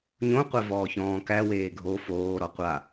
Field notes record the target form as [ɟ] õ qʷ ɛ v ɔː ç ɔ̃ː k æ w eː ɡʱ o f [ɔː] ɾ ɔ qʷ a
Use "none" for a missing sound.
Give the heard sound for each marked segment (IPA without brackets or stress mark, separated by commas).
ɲ, oː